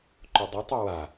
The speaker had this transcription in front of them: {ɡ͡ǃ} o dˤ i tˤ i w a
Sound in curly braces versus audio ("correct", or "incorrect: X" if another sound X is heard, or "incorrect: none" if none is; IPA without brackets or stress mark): incorrect: ǃ